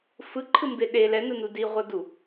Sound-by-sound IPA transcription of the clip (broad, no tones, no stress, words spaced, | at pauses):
fɯǃʰɯmbe ɗe lɛnɯnu diʁʷɤdu